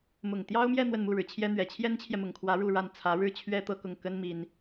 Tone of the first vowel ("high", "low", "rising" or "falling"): low